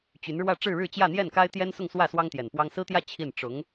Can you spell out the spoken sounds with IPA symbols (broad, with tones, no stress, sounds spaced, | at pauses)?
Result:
t͡ɕ y˧˥ n ɻ w ä˥˧ ʈ͡ʂ ɻ̩˥˧ ɻ ɻ̩˥˧ t͡ɕ j ä˥˧ n̪ j ɛ˥˩ n k a˥ ɪ̯ t̪ j ɛ˥ n s ʊ˥˧ ŋ s w ä˥˩ s w ɑ˥ ŋ t̪ j ɛ˨˩ n p w ɑ˥ ŋ s ɹ̩˥ t̪ j ä˥˧ t͡ɕʰ i˥˩ n ʈ͡ʂ ʊ˧˥ ŋ